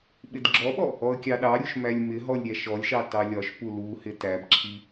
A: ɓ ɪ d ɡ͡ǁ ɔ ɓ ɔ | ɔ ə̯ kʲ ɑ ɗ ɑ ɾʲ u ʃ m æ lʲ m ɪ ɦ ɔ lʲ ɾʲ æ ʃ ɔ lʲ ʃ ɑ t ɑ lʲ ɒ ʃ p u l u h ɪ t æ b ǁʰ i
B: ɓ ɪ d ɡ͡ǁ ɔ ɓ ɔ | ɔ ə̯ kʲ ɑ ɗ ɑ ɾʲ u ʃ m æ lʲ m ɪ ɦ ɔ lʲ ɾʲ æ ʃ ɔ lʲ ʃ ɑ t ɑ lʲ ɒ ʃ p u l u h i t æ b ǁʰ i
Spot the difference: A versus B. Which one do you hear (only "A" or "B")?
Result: A